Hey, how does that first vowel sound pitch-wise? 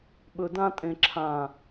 low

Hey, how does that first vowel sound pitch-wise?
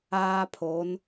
high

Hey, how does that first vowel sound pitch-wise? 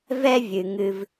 high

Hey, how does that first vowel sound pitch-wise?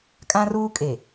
high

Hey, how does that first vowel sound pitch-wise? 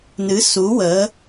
rising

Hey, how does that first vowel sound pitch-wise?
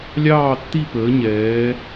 falling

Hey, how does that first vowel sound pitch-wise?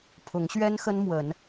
rising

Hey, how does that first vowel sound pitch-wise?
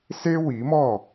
high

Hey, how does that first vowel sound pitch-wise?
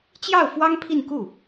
falling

